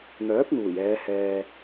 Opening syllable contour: rising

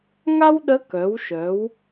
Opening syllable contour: high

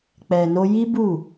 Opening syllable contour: low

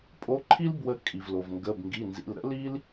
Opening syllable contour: rising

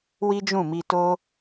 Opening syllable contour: high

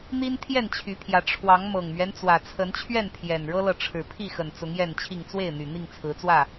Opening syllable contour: high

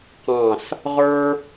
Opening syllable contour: falling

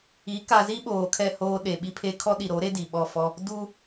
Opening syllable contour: rising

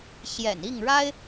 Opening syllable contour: low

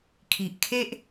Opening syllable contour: low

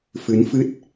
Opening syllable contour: rising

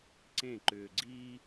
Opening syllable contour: falling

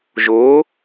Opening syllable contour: rising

